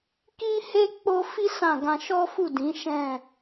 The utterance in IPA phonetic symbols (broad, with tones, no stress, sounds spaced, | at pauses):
k i˦ h e˦ k͡p o˦ f i˦ s ã˦˨ ɡ ã˧ ʃ ɔ˦ f u˦˨ d ĩ˨˦ ʃ ɛ̃˦˨